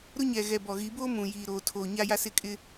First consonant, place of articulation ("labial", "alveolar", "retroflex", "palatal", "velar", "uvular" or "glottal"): alveolar